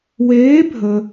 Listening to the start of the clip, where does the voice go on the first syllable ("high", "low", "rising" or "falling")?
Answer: rising